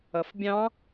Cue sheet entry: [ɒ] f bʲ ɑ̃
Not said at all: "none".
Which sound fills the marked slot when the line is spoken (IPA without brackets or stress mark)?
ʌ